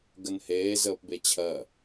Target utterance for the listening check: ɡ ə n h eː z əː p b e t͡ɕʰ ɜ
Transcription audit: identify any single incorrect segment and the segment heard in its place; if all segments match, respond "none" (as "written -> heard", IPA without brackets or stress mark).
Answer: none